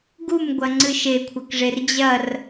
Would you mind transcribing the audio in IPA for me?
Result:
ɡ u m ɡʷ ɐ ŋ͡ǀ ɨ ʃ e kʷʰ ɐ k ʐ e r d͡ʑ ɐ r

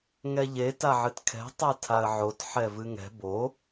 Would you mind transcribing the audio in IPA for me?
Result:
ŋ ɛ ʎ e t a ʕ ɨ t kʰ ɛ̤ tˤ ɛ tʰ a ə̯ ʕ o t ħ ɛ v ɨ ŋ ɛ̤ b o

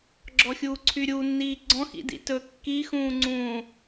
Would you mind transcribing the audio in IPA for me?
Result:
ɡ͡ǁ ɔ xʲ uː ǀʰ y ɾʲ u nː iː ɡ͡ǀ ɔ̃ x ḭ d ḭ t ɵ kː i x ũː ŋ͡ǀ ũː

